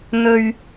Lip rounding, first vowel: rounded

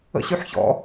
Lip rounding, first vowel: unrounded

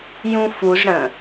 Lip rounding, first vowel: rounded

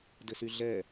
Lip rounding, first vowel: unrounded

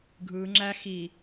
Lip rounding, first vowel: unrounded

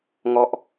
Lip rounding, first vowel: rounded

